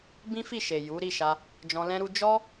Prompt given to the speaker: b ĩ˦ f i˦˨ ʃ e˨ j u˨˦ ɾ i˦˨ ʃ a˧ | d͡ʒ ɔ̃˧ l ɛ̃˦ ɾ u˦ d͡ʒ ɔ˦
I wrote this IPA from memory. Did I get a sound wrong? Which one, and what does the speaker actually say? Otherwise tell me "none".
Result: none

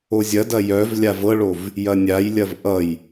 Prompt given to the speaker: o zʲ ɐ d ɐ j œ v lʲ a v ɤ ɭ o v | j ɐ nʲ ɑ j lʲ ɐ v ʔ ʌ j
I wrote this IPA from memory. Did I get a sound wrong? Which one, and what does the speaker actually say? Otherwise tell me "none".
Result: ɑ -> a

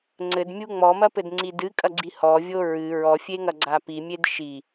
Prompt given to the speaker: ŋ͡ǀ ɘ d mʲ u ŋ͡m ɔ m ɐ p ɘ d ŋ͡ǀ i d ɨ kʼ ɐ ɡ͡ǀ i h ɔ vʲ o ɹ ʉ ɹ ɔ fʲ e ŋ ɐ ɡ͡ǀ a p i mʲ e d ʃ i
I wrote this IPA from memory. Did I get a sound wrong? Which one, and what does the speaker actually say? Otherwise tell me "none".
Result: ʉ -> ɨ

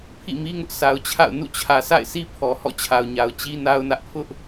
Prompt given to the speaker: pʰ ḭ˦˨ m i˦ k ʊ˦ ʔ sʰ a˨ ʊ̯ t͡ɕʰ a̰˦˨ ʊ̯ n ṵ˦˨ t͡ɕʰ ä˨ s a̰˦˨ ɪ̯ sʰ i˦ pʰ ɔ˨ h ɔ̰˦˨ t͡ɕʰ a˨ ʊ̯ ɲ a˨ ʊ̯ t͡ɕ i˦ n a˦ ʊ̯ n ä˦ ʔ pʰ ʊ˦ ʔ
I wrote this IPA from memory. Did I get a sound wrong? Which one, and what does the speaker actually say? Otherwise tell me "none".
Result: k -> ŋ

